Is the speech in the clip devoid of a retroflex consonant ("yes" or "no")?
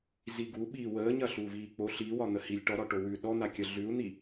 no